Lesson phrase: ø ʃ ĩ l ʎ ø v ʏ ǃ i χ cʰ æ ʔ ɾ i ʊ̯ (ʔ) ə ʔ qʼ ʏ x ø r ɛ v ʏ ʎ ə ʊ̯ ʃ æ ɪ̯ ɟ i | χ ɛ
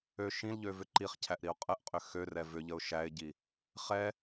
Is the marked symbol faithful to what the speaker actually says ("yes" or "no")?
no